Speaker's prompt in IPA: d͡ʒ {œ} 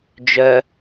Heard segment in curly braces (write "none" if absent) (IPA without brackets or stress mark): œ